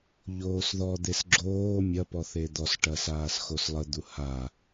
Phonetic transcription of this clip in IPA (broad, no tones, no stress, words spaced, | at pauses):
ʎoːsðɔd̪es ɡ͡ǁoː mʲɐpɔ θed̪ɔsʈɐ saːsxoslˠəd̪u ha